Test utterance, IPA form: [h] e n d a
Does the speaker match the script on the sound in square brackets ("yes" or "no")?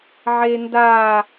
no